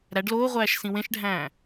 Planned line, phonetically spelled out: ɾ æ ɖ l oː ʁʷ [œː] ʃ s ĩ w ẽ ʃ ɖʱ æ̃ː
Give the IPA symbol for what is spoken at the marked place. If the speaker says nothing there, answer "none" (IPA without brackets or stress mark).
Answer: æː